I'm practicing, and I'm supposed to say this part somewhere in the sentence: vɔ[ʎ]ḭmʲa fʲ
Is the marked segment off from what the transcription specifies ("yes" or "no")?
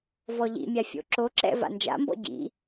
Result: no